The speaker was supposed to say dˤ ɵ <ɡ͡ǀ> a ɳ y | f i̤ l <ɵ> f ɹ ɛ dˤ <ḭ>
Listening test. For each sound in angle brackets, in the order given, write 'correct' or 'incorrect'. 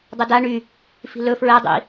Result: incorrect: d, correct, correct

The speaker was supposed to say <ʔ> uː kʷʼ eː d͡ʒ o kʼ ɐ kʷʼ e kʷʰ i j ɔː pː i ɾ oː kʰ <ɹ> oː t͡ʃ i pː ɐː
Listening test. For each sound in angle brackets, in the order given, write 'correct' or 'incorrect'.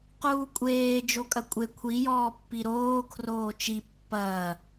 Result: incorrect: q, incorrect: r

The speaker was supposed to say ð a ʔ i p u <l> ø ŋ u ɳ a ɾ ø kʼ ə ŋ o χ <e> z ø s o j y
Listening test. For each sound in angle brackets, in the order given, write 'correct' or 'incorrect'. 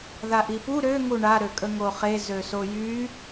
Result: incorrect: ɾ, correct

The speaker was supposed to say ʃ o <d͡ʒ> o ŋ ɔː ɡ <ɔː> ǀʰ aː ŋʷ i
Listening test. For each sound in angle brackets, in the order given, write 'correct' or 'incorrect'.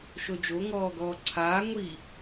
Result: correct, correct

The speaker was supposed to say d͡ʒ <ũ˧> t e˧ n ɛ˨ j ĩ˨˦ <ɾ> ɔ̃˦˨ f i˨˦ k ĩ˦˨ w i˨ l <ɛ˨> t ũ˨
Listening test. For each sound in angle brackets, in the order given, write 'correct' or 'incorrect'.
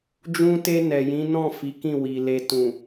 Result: correct, incorrect: n, incorrect: e˨

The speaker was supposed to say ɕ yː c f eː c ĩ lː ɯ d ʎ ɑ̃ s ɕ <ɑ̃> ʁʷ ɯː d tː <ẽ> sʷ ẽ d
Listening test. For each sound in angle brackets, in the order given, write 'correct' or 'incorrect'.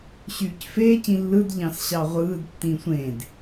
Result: incorrect: ɑ, incorrect: ĩ

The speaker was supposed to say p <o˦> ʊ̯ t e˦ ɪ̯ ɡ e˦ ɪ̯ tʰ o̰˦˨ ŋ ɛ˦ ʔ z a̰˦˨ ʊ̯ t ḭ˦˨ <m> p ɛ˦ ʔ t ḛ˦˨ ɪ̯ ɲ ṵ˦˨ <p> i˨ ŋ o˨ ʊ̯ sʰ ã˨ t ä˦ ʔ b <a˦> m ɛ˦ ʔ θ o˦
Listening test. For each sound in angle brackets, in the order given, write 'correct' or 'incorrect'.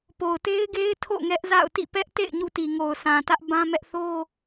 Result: incorrect: o˨, incorrect: none, incorrect: t, incorrect: ã˦

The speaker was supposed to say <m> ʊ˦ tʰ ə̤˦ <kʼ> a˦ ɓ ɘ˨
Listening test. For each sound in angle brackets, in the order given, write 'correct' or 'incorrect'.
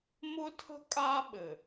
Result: correct, correct

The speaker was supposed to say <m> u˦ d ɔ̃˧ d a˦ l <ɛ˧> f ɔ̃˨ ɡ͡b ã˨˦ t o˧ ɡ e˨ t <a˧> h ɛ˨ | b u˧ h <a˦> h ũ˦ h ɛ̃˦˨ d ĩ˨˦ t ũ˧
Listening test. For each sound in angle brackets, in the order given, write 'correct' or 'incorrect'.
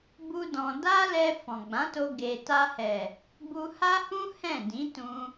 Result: incorrect: b, correct, correct, correct

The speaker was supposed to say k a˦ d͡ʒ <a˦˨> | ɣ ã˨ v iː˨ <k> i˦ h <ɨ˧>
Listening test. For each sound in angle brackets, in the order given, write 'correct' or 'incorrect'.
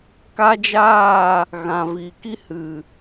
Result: incorrect: aː˦˨, correct, incorrect: ɨ˨

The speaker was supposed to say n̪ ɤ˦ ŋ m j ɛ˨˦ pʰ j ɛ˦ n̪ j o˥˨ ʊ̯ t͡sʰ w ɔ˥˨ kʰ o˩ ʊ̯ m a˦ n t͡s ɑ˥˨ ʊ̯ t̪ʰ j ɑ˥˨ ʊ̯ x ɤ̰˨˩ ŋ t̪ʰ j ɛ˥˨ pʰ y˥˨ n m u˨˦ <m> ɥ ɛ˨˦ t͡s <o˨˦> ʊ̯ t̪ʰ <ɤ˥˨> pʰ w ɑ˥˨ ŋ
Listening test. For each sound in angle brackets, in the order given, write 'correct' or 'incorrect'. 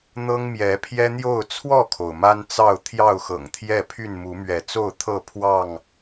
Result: correct, incorrect: o˥˨, correct

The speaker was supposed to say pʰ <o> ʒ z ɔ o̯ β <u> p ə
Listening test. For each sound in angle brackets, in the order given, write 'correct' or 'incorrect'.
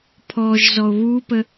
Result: incorrect: ɔ, correct

